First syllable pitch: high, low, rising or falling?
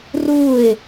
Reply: falling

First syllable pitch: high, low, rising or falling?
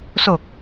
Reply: low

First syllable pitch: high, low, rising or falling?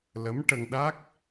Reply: rising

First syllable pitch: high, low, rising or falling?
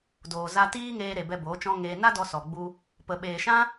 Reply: low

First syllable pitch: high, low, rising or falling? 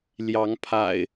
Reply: rising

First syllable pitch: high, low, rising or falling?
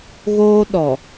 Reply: high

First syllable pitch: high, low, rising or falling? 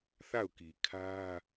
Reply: falling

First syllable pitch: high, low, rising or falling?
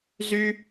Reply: high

